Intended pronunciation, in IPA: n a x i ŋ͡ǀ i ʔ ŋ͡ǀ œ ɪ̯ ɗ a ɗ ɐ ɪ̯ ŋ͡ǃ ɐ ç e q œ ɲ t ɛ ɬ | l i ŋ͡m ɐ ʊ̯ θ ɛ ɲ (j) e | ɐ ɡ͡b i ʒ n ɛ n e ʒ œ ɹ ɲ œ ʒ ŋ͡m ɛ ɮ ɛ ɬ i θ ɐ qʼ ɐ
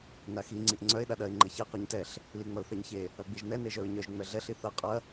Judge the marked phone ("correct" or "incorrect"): incorrect